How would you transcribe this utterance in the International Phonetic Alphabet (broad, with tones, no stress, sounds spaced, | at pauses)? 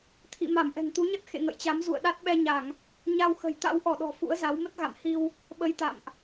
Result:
t̪ʰ ḭ˧˨ m a˧˩ m ʔ ɛ̤˨˩ ŋ t̪ u˨˦ ɲ ə˦˥ t̚ x ḛ˧˨ ŋ ə̰˧˨ j t͡ɕ a˨˦ m z ṵ˧˨ ə̯ ɗ a˦˥ t̚ ɓ ɛ˧ ɲ a˧˩˨ ŋ | ɲ a˧ w x ə̤˨˩ j t̪ a̰˧˥ w ʔ ɔ˧˩ ɗ ɔ̤˨˩ f ṵ˧˥ ə̯ z a˨˦ w m ə˦˥ t̚ ɣ a̰˧˨ m h i˧ w | ɓ ə˧ j t̪ a̰˧˨ m ʔ